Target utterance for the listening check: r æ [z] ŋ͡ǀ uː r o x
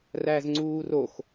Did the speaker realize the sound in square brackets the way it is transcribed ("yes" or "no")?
yes